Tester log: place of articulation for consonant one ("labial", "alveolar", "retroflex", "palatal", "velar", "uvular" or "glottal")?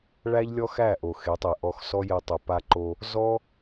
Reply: retroflex